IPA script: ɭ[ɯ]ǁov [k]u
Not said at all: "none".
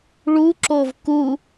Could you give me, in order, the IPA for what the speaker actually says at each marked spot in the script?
u, k

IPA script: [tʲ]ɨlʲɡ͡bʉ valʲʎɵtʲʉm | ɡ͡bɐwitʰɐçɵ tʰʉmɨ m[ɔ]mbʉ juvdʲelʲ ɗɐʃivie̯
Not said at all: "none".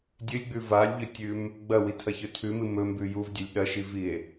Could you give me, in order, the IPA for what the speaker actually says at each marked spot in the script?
dʲ, ɵ

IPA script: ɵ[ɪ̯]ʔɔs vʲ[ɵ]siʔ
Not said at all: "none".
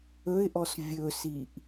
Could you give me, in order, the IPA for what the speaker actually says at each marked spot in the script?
ɪ̯, ɵ

